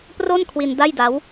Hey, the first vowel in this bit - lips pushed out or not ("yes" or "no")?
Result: yes